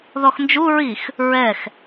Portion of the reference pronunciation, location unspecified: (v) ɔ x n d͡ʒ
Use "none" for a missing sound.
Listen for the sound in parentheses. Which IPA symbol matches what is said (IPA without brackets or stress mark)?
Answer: ð